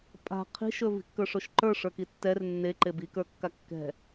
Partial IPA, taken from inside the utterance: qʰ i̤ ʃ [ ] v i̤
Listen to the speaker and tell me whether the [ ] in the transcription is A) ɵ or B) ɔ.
A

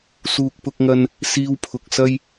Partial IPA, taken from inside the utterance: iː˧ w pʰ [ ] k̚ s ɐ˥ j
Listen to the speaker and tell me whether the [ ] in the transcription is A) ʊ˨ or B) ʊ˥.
A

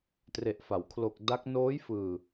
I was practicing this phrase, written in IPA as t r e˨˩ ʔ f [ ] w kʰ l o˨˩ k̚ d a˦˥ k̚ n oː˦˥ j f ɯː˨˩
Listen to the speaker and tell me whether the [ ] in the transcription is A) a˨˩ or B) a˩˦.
B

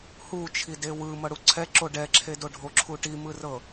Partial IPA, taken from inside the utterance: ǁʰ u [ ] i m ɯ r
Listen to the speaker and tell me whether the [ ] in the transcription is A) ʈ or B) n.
A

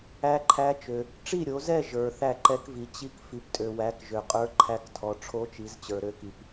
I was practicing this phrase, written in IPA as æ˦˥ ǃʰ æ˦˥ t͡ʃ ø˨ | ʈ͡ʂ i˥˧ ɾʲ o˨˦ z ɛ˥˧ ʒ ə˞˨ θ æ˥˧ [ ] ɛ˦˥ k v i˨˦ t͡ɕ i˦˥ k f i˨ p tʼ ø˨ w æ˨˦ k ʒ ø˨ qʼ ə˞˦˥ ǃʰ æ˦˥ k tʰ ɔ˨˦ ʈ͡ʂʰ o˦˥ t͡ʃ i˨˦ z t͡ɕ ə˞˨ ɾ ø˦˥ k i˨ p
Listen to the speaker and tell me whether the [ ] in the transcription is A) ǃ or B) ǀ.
A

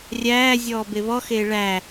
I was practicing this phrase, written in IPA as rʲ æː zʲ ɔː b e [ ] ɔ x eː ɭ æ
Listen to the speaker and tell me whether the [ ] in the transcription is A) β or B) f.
A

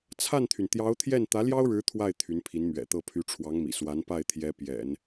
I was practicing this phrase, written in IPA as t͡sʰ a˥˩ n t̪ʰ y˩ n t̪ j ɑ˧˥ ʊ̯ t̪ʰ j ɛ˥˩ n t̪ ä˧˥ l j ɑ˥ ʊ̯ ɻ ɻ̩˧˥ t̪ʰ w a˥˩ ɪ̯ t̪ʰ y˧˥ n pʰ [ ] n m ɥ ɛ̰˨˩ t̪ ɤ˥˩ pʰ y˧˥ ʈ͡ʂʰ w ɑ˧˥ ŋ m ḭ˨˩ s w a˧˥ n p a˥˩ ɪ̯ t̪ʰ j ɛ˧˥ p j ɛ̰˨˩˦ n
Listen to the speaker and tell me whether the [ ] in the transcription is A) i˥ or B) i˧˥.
B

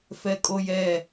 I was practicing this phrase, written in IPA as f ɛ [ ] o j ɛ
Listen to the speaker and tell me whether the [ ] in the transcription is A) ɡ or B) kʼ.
B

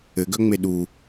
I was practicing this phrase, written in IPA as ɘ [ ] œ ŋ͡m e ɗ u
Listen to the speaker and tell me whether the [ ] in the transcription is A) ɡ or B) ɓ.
A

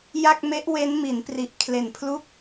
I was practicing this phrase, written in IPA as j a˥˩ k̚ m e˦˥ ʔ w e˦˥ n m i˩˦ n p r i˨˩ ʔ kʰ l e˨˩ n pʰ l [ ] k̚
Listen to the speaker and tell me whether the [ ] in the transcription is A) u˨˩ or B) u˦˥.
B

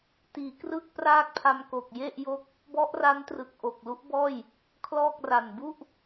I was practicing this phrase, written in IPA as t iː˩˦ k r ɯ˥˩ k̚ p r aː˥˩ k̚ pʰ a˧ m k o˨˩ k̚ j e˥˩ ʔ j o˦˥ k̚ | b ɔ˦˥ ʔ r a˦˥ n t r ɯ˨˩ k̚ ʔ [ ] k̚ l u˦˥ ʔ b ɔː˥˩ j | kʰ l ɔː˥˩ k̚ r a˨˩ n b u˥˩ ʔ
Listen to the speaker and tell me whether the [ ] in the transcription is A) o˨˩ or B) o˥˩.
A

